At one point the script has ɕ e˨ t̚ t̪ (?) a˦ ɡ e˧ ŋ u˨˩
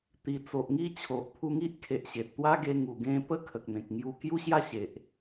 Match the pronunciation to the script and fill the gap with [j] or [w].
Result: w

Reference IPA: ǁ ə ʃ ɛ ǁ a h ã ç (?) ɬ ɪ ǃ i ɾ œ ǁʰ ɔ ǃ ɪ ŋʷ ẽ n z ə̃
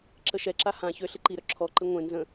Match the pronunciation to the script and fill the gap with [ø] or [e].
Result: ø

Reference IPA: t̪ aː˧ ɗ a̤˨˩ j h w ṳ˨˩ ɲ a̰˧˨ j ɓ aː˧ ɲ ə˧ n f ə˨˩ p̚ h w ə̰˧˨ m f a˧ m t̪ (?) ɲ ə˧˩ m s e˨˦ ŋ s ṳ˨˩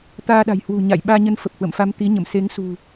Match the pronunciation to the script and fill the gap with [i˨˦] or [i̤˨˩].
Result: i˨˦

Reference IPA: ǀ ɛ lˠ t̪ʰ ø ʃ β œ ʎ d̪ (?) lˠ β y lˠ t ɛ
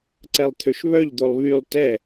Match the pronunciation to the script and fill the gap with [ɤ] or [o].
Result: o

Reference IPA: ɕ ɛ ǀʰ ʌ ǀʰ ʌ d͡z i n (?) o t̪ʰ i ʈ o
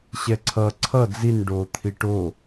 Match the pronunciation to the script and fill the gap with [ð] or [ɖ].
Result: ɖ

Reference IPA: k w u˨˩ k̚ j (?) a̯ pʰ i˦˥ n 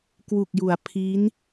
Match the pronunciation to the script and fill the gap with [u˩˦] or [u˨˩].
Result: u˩˦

